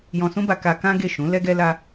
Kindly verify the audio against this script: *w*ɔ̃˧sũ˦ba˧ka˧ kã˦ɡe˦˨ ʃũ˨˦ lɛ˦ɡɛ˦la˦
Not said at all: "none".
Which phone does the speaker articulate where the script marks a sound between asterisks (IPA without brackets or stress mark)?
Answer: j